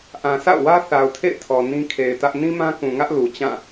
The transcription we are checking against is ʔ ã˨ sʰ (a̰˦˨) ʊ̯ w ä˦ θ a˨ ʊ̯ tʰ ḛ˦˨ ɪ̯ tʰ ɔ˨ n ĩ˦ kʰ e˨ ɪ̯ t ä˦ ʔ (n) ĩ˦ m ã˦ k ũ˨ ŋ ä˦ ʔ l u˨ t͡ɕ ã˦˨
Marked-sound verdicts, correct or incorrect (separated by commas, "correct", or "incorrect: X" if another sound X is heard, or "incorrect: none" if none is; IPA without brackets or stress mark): correct, correct